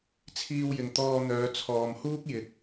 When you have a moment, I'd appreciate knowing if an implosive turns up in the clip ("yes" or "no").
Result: no